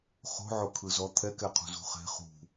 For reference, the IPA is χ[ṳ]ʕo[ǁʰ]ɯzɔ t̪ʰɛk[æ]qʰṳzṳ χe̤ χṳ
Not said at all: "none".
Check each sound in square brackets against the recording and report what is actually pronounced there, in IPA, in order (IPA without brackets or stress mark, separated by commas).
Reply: o̤, kʰ, ɛ